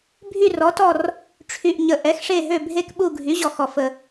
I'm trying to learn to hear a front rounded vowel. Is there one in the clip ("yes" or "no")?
yes